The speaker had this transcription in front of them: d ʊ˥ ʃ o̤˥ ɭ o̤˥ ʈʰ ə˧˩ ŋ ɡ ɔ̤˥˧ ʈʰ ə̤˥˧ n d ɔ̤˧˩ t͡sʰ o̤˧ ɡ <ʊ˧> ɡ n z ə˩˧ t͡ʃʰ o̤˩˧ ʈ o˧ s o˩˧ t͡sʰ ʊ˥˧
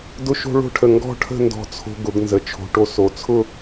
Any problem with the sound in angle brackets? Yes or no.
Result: yes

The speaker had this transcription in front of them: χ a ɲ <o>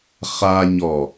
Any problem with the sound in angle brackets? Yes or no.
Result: yes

